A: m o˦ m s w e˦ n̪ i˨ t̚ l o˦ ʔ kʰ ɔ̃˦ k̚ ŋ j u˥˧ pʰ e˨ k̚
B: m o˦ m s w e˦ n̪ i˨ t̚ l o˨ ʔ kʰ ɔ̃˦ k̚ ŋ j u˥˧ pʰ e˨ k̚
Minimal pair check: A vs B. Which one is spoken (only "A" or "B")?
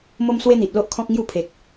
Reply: A